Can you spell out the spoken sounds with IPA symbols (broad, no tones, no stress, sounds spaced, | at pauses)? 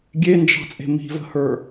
ɡʲ e n d͡ʒ ɑ̤ t͡sʼ e̤ m i̤ v ə̤ h ə˞